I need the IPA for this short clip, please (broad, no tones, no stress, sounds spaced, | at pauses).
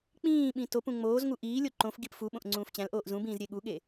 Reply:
k͡p ĩː ɓ ĩ t o p ũ ŋ͡m oː z ŋ u ʔ iː lʲ o ǃ õ f ɡ i p f u ɓ õ ʔ ŋ͡ǀ ũː f t͡ɕ æ̃ l ʔ oː ʔ z ũ b ĩː z ɾʲ e ɠ u ɠ e